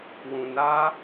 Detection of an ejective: absent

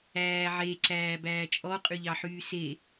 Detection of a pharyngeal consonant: present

